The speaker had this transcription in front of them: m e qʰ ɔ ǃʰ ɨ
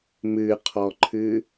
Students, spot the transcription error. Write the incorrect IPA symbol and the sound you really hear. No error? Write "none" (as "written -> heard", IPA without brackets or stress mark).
e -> ɨ